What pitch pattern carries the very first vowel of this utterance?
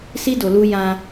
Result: high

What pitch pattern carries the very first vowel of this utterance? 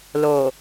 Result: low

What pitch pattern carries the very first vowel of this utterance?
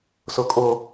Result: high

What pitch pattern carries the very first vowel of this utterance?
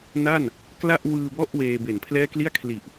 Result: falling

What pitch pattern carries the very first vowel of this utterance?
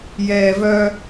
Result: low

